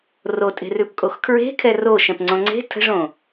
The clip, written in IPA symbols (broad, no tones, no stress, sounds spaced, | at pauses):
r o tʼ e̤ r ʉ p kʼ o x kʰ ɹ e̤ kʰ ɛ r o ʃ ɛ̃ p ŋ͡ǀ õ ŋ͡ǀ e̤ tʰ ə̤ ʐ õ